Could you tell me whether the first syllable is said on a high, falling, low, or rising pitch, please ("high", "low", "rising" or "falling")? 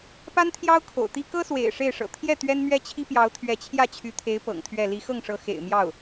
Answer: high